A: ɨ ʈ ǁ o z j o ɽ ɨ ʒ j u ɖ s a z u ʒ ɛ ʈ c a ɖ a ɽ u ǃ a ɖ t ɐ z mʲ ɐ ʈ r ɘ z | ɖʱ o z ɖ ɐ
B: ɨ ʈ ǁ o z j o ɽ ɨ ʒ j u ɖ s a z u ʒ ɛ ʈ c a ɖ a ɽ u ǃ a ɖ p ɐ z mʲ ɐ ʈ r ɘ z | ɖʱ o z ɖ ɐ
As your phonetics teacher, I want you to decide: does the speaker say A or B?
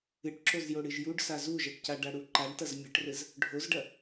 A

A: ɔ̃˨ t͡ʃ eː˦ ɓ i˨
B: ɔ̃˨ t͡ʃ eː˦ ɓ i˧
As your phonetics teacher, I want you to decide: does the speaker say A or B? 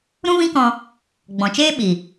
A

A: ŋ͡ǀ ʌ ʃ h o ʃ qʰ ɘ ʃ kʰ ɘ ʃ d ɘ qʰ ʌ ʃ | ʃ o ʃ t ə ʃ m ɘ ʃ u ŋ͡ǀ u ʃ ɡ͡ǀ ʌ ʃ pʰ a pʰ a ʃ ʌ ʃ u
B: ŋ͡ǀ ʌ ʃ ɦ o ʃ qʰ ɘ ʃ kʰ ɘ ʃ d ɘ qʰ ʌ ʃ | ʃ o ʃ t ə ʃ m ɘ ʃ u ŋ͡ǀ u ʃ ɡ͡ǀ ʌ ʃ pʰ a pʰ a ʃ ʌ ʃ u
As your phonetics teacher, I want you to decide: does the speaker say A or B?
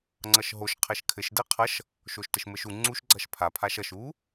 B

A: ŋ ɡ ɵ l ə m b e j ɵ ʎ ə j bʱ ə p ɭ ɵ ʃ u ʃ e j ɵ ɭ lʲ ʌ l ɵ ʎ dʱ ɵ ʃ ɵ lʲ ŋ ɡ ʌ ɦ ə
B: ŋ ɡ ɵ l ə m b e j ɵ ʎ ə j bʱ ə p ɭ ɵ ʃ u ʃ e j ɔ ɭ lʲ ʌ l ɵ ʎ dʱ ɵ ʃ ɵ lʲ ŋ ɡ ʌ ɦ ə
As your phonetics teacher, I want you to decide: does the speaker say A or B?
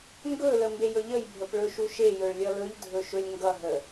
A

